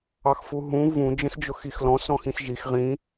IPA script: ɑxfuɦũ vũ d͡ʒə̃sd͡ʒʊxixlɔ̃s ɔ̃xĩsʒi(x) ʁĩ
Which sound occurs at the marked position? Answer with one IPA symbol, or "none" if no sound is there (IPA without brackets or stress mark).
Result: x